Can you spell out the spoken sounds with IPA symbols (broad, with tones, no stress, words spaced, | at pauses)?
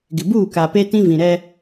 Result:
ɡɪ˨buː˦˨ka˨ pe˦tĩ˦vĩ˨ ɾɛ˦